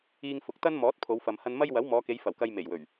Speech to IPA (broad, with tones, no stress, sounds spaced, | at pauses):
iː˧ ŋ f ʊ˨˥ k̚ t̪ ɐ˥ n m ɔː˨˥ t̚ pʰ o˨˧ w f ɐ˨ m h ɐ˧ n m ɐ˥ j w ɐ˨˥ w m ɔː˨˧ k e˨˧ j f ɐ˨˩ w k ɐ˨ j m e˨˩ j w ɵ˨˩ ɥ